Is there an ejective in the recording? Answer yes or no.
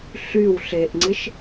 no